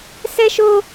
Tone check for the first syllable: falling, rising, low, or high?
high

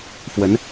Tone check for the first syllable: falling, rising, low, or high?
rising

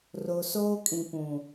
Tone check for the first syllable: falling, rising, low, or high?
low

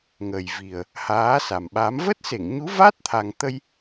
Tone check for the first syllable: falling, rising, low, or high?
low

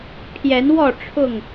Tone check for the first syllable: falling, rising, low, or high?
rising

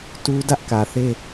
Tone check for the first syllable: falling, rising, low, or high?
high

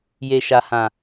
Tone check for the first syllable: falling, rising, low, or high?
low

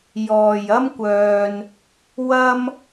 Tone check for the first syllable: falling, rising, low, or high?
low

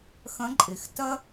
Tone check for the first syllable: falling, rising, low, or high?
rising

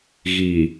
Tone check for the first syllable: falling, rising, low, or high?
low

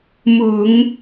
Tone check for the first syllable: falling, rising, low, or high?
low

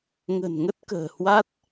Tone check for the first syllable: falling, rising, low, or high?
low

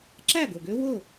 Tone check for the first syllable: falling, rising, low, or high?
falling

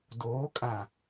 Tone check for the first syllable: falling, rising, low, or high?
rising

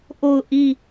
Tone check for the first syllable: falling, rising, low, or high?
falling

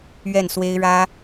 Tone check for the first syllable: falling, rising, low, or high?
falling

